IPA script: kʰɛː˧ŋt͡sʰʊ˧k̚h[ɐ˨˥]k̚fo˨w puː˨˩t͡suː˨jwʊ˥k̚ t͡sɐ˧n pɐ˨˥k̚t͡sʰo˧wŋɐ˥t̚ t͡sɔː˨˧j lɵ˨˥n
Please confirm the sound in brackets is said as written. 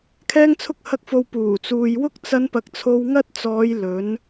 yes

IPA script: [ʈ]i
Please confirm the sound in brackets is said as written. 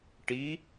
yes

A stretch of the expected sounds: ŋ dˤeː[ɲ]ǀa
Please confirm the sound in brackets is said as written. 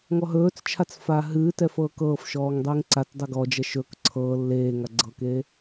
no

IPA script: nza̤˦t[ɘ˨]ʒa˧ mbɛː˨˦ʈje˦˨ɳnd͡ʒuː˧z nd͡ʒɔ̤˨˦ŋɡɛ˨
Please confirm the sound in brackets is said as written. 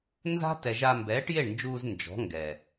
no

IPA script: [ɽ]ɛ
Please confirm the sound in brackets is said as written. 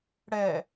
yes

